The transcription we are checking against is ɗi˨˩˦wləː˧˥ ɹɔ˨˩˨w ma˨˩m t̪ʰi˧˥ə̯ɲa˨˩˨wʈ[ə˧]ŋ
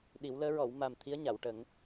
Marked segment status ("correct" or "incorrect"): incorrect